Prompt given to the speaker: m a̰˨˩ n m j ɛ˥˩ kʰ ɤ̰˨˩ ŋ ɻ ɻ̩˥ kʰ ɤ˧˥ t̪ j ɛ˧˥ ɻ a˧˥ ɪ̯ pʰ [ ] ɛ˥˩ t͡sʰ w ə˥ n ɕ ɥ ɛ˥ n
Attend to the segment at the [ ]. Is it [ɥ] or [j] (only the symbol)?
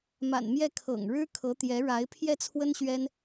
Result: j